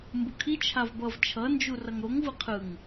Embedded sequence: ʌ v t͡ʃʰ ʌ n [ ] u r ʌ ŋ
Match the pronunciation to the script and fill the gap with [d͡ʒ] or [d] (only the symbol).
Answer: d͡ʒ